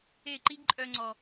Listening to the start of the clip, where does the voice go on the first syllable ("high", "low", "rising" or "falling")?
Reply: falling